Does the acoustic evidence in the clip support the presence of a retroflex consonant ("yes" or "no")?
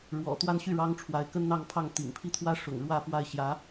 yes